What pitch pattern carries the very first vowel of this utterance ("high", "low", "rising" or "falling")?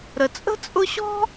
low